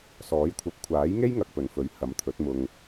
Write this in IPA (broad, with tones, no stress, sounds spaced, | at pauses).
s ɔː˨˥ j kʷʰ ɐ˨˥ p̚ kʷʰ aː˨˥ j ŋ e˥ j ŋ ɐ˨ k̚ p ɵ˨˩ n f ɵ˨˥ ɥ h ɐ˨˥ m t̪ʰ ɵ˨˥ t̚ m ʊ˧ ŋ